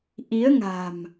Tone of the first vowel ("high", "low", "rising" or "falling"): rising